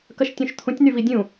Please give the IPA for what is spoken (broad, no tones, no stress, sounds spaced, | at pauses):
k ɐ ʃ tʲ ũ ʃ t̪ʰ ũ tʲ n̪ y v i dʲ ũ